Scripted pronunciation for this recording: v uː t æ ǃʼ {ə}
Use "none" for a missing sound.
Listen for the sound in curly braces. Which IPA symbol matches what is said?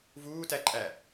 æ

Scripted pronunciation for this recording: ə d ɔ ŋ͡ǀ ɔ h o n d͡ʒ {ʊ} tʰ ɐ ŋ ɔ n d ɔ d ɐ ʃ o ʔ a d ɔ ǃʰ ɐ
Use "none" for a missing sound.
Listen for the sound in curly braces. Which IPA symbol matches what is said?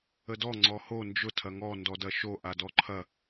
ʊ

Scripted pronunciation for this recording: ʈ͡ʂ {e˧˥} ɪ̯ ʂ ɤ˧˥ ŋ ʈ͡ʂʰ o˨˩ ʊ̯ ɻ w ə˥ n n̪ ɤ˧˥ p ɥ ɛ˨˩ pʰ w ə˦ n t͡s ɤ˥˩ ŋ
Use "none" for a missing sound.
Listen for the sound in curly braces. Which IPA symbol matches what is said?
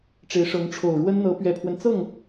e˧˥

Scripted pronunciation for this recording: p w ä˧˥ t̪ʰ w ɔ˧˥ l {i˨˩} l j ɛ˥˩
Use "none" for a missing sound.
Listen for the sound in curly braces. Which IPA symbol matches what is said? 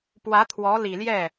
i˨˩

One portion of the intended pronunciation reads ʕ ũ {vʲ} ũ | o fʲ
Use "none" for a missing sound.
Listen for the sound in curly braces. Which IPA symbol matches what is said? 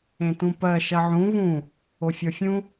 v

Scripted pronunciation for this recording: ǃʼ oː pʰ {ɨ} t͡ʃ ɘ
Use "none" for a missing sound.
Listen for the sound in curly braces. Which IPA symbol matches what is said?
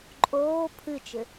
ɨ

